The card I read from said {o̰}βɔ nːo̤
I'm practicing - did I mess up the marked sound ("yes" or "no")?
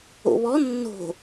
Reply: no